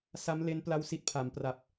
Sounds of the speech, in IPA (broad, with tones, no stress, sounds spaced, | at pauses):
s a˦˥ m l e˦˥ n p l a˥˩ w s i˦˥ t̚ pʰ a˩˦ m p r a˨˩ p̚